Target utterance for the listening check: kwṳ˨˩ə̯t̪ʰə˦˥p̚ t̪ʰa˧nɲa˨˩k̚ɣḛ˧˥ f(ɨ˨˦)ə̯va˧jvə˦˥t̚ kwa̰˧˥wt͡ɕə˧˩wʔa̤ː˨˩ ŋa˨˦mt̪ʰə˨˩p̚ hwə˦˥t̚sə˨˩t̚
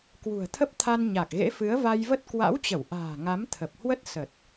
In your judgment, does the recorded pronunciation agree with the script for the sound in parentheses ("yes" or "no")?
yes